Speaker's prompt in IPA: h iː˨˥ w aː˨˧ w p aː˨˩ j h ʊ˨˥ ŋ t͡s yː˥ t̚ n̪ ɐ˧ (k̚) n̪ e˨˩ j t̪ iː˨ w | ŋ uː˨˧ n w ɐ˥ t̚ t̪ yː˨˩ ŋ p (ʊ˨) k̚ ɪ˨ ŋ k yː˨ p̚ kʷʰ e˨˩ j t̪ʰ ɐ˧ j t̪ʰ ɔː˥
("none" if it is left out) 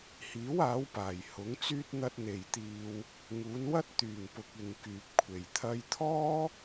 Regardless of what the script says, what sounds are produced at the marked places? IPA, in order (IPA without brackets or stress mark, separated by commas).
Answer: t̚, ʊ˨